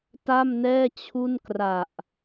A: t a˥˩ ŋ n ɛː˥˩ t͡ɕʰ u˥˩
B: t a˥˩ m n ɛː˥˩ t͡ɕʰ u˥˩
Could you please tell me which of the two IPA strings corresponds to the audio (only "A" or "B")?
B